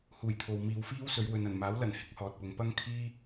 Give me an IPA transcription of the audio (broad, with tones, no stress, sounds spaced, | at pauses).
h uː˨˩ j t̪ʰ o˨ w m iː˨ w f iː˥ w s ɵ˨˧ ɥ w ɵ˨ n ɐ˨˩ n m aː˨˥ w l ɐ˨˩ n h ɪ˧ k̚ h ɔː˨ t̚ p ʊ˨˧ ŋ p ɐ˥ ŋ kʰ iː˥